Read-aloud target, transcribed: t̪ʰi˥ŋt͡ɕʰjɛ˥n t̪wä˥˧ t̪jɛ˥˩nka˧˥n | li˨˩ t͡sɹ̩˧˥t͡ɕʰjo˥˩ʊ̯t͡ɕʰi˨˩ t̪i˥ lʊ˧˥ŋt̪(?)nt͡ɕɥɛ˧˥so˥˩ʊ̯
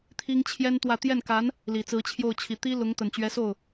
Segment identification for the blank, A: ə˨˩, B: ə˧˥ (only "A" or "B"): A